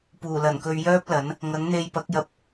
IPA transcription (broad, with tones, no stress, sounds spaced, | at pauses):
p uː˨˩ l ɐ˨˩ n k ɵ˧ ɥ j œː˥ p̚ l ɐ˨˥ n | ŋ ɐ˨˥ ŋ n̪ e˧ j p ɐ˨˥ k̚ j ɐ˧ p̚